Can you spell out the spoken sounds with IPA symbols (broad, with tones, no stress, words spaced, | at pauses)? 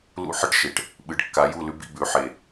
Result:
lṵ˦ħɨ˦ʈʃe˨ʈ | ɓɨ˨ɖkːa˨˦ ju˦˨lʉ˦bḭ˧bʉ˨˦ ħe˨